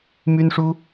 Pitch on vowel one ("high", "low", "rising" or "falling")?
high